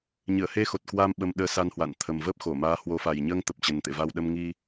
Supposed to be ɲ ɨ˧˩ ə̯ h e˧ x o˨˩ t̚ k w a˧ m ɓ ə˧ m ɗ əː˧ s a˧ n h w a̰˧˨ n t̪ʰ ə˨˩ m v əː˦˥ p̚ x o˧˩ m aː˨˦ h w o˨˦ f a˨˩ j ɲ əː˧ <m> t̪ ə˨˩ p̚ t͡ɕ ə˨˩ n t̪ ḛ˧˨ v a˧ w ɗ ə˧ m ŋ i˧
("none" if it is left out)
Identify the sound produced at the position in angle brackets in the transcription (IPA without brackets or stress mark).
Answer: ŋ